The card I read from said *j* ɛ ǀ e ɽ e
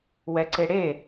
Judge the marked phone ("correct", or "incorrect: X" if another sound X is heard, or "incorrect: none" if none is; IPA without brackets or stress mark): incorrect: w